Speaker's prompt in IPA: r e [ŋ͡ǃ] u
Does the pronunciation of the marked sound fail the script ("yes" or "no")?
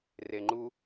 no